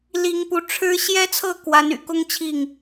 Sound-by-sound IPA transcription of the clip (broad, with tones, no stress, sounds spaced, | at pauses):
l i˨˦ ŋ p u˨˦ ʈ͡ʂʰ ɻ̩˦ ɕ j ɛ˦ t͡sʰ ɤ˥˨ k w a˨˦ n y̰˨˩ k ʊ˦ ŋ t͡ɕʰ i˥˨ ŋ